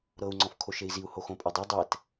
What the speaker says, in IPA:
ɾ ɤ u̯ ŋ͡ǀ ɔ̃ f kʰ o ʃ e i̯ z i u̯ h o x õ pʼ ɛ dˤ e dˤ ɛ t

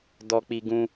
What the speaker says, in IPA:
d ɔ˦ k͡p i˦ ɡ ũ˦

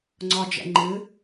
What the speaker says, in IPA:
ŋ͡ǀ ɒ d͡ʒ ɛ̰ ŋ͡ǃ ɨ

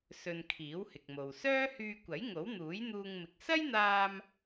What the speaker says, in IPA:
s ɵ˧ n kʰ iː˨˥ w h ɪ˨ k̚ m o˨ w s œː˥ h yː˧ kʷ ɐ˨˥ j ŋ o˨˥ w n̪ uː˨˥ j n̪ uː˧ ŋ m ɪ˨ k̚ s ɐ˥ j n̪ aː˧ m

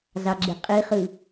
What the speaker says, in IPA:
z ɑ ɡ͡ǁ e qʼ i χ ɯ

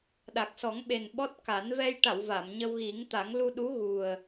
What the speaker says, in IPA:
ɗ a˨˩ k̚ s ɔ˨˩˦ ŋ ɓ e˨˩ n ɓ ɔ˦˥ t̚ k a˨˩˦ n v ɛ˧ j ʈ a˨˩˨ w v a˨˩˨ m ɲ ə˧ w ɣ i˨˩˦ ŋ t̪ a˨˩˦ ŋ l u˧ ɗ u˧˥ ɣ u˨˩ ə̯

